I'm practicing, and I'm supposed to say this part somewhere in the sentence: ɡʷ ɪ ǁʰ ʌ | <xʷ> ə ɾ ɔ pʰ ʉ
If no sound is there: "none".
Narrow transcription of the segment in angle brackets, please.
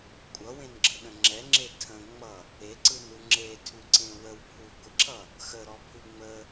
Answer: x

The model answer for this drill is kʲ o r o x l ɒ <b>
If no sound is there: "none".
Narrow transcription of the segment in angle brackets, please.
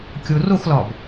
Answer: b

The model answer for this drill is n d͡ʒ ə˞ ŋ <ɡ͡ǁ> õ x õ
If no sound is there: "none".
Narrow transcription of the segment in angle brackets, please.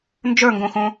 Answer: ɡ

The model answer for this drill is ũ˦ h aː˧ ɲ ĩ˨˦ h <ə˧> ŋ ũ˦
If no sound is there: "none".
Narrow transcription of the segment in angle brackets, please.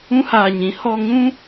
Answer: ɔ˧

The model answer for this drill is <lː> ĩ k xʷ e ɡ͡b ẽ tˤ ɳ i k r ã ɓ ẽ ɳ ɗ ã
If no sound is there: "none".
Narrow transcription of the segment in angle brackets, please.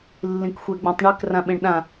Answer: lː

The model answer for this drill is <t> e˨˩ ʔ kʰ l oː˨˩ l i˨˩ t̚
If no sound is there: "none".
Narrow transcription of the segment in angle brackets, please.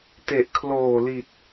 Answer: t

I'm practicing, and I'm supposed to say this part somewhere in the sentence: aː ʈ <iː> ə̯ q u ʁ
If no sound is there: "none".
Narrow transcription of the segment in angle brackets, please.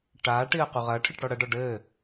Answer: i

